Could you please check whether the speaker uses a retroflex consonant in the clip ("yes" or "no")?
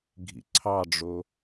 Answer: yes